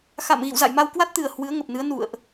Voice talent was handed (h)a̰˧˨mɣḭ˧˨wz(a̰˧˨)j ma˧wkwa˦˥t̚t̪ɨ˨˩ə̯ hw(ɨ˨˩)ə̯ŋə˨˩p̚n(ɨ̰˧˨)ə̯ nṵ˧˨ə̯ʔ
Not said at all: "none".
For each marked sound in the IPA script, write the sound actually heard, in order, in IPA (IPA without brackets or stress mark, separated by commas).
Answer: x, a̰˧˨, ɨ˨˦, ɨ˨˦